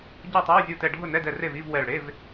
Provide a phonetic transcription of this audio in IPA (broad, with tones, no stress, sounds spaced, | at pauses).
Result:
ɟ ɛ˥˩ tˤ o˧˥˧ w zʲ u˧˩ t ɛ˧˩ ɖʱ ʊ˥˩ n ɛ˧˥˧ d ɛ˧˩ r e˥˩ v i˧˥˧ v w ɛ˧˩ ɭ ɽ e˧˥˧ v